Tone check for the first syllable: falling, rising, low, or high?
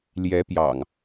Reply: rising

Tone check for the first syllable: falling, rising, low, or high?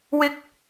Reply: high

